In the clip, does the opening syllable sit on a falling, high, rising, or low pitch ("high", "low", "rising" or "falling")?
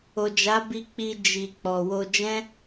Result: low